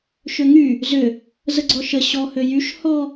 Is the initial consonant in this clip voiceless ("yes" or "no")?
yes